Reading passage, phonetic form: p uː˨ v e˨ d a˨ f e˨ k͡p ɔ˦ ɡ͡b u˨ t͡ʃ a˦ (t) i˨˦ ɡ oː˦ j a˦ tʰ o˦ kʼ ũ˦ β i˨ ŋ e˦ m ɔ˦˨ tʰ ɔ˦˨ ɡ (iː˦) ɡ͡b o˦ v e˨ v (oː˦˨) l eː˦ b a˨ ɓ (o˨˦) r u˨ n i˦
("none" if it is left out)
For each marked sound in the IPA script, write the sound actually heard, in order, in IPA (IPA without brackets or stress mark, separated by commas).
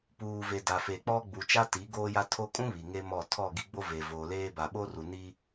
t, i˦, oː˨, o˦